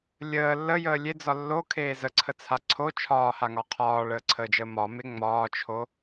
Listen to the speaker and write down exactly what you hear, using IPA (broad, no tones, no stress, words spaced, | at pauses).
lʲəː lːəjəː lʲed͡zɒ lːokʰeː zəǀʰət͡sʰa ǀʰo t͡ʃʰɒːhaŋɒ qʰɒːɭəːǀʰəːd͡ʒəː mɒme ŋ͡mɒːt͡ʃʰo